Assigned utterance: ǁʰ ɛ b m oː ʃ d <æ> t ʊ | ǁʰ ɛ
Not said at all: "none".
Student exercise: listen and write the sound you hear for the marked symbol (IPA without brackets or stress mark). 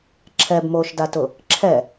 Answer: a